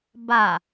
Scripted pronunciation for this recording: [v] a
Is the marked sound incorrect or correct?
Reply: incorrect